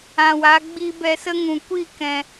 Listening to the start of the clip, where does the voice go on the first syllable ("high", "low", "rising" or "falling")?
low